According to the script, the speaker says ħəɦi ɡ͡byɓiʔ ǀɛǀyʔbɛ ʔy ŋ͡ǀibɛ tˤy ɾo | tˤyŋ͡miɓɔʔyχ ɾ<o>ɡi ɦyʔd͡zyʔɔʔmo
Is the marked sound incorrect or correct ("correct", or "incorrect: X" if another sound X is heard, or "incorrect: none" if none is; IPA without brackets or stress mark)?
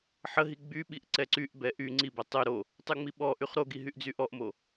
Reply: correct